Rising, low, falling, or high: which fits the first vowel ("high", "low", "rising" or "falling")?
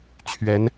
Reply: rising